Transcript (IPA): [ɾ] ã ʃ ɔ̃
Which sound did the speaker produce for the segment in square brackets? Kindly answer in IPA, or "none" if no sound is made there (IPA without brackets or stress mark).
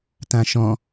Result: t